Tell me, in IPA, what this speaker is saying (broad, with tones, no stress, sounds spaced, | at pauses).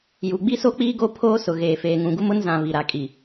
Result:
j u˨ ɡ͡b i˦ s o˦ k͡p iː˦ ɡ o˦ pʰ oː˦ s ʊ˨ ɣ eː˨ f eː˨ ŋ ũ˨ ɡ u˦ m ʊ˦ n z ã˨ β i˨ ɾ a˨ kʼ i˨